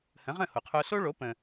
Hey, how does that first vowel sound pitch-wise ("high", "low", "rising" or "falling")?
rising